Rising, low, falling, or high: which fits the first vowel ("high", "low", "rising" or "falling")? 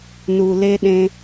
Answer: low